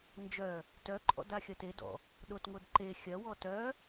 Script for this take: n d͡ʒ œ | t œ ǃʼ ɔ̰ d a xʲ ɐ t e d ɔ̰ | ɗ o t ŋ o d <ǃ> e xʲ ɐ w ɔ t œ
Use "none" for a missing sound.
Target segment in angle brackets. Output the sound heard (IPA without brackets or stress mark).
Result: ǃ